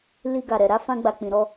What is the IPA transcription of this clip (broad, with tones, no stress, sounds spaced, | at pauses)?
l i˧ ɡ a˨ ɾ ɛ˨ ɾ a˨˦ f ã˧ ɡ͡b a˨ k͡p ĩ˨ ɾ ɔ˧